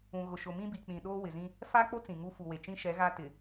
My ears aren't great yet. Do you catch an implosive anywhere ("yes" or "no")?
yes